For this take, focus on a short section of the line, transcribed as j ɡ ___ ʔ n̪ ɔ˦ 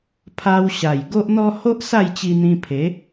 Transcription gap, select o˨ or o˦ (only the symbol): o˦